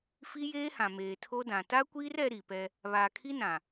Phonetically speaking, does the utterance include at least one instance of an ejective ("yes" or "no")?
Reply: no